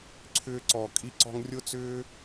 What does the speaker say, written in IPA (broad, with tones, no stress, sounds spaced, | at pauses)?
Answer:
ǀʰ ʏː˧ ǀ ɔ˨ kʼ i˧ ǀ ɔ̤˧ ŋ rʲ ʊ˦ t͡s ʏː˦